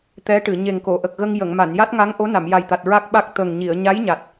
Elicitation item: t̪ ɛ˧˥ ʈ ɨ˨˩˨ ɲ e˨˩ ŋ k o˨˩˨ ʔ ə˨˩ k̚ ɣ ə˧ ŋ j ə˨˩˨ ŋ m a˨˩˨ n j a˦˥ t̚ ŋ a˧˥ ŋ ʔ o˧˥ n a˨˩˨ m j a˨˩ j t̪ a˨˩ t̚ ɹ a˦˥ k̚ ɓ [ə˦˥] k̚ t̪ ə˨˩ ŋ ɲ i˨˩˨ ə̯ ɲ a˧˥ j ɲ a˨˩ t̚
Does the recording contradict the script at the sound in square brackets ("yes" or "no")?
yes